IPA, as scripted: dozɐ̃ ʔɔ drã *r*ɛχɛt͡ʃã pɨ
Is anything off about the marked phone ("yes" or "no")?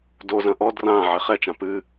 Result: yes